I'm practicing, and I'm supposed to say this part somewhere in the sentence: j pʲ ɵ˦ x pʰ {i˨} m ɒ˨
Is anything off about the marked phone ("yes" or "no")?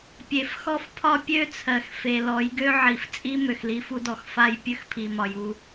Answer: no